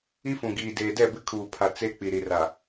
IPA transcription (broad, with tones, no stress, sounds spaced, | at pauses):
i˦ f ũ˨ ɡ iː˨ d eː˨ d ɛ˦˨ b ɪ˦ kʰ uː˨ pʰ a˨ t͡s e˦ k͡p i˨ ɾ i˨ r a˨